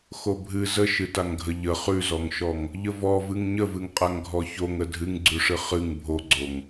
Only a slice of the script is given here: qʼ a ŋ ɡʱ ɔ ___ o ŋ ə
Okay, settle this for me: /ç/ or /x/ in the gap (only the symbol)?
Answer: ç